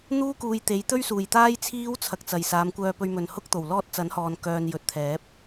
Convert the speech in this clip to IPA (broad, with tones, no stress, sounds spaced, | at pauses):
n̪ uː˥ k uː˨ j t̪ e˨˥ j t̪ ɵ˥ ɥ s uː˨˩ j t̪ aː˥ j t͡sʰ iː˥ w t͡sʰ ɐ˨ k̚ t͡s ɐ˨˩ j s aː˨˧ m kʷ œː˧ p ɵ˧ ɥ m ɵ˨ n h ʊ˧ k̚ t̪ o˨˩ w l ɔː˧ t̚ t͡s ɐ˨˥ n h ɔː˨ n k œː˨ n j ɵ˨ t̚ t̪ʰ ɛː˨˥ p̚